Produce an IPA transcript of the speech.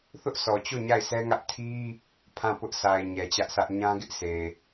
θ ʊ˦ ʔ s ɔ˨ t͡ɕ o˦˨ ɲ a˦˨ ɪ̯ s ɛ˦ ŋ ä˦ ʔ tʰ i˦ | pʰ ã˦˨ p ʊ˦ ʔ s a˨ ɪ̯ ɲ ɛ˨ t͡ɕ ä˦ ʔ s ä˦ ʔ ɲ ã˦ ɡ ɪ˦ ʔ sʰ e˨

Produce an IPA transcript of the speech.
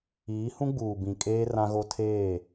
iː˨˦ h ũ˦ ɡ͡b uː˨ b ĩ˨ kʼ eː˦ r ã˦ ɣ o˦ tʰ eː˦˨

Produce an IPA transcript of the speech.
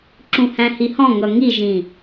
ǁ ũ h æ̃ h i h ɔ̃ ŋ ʌ ŋ i ʒ ĩ

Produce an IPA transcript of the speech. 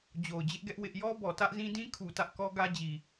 d͡ʑ o˨ ʊ̯ d͡ʑ ɪ˦ ʔ ɡ ɛ˦ ʔ w ɪ˦ ʔ j ɔ˦ b ɔ˨ t ä˦ ʔ z ĩ˦ d ĩ˦ kʰ u˨ t ä˦ ʔ k ɔ˦ ɡ ä˦ d͡ʑ i˨

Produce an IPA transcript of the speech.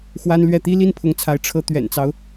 x w a˥ n l ɥ ɛ˥˩ t̪ i˥ l i˥˩ n pʰ ʊ˧˥ ŋ t͡sʰ a˧˥ ɪ̯ ʈ͡ʂʰ ɤ˧˥ t̪ ɥ ɛ̰˨˩ n t͡s ɑ˦ ʊ̯

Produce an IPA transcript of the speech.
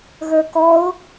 ɣ ə˞ k ɔ ʊ̯

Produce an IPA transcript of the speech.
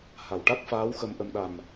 h a˨˩˨ w ʈ a˦˥ k̚ f aː˧˥ w x ə˧ m ʔ ə˧ m ɗ a˨˩ m

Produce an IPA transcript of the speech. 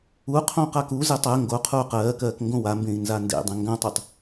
u qʰ õ q a k u z e tˤ ɜ ŋ ɡ o qʰ uː q ɜː k ɜː k ŋ ɡ õ w a m b ẽ i̯ n z a n d ḛ dˤ ẽ ŋ ɡ ã tˤ o tˤ

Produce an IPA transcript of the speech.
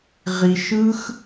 ʁ i˥ ʃ ɯ˥ x

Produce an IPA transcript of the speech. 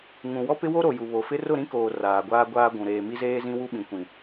ŋ ũ˨ w ɔ˦ p ɪ˦ w o˦ ɾ o˨ j u˨ β o˨ f ɪ˦ r ʊ˦˨ ɾ ĩ˦ k oː˨ r aː˨ ɡʷ aː˦ ɡʷ aː˦ ɡʷ ũ˨ ɾ eː˨ m i˦ z eː˦ z ĩ˦ w u˦ ɓ ĩ˨ kʷ ĩ˨

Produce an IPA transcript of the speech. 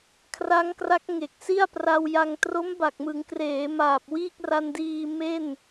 kʰ r a˦˥ ŋ k r a˦˥ k̚ ŋ e˨˩ k̚ s i˥˩ a̯ p r a˧ w j a˧ ŋ t r o˦˥ m b a˨˩ k̚ m ɯ˩˦ ŋ k r eː˩˦ m aː˨˩ p̚ w iː˥˩ k̚ r a˧ n d iː˧ m e˥˩ n

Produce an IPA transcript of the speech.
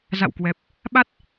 z a̰˧˨ w k w ɛ˨˩ p̚ | ɓ a˦˥ t̚

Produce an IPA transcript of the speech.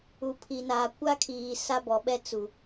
u˨ pʰ i˨ n aː˨ kʷ a˦ kʰ iː˨ s a˦ b ɔ˨ ɓ ɛ˦ t͡s u˨

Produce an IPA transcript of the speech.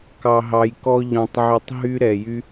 k ɑ˨ ɦ ɑ˨ j k ɔ˧ ʎ ɔ̃˨ tˤ ʕ ø˧ tˤ ɦ y˦ ɾ ɛ˨ j y˦

